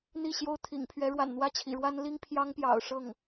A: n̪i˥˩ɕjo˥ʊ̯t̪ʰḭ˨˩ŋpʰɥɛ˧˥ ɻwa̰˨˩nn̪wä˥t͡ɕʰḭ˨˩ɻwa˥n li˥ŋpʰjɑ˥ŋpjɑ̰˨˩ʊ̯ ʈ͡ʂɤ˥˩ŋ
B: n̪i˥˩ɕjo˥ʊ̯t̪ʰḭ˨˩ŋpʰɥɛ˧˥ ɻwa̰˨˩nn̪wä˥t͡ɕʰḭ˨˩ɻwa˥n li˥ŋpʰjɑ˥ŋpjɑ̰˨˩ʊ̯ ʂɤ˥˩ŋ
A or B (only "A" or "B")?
B